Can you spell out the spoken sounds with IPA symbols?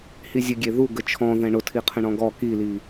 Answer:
h i zʲ ə ɡʲ e ð u ɡ ə t͡ʃʰ ɔ̃ ð ɛ̃ ɳ ʊ tʰ i qʰ ə̃ ɳ ɔ̃ ɡ ɔ k i l i

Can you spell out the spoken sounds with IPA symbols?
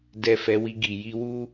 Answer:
d ɛ˨ f ɛ˨˦ w i˧ ɡ i˨ j i˧ w u˦

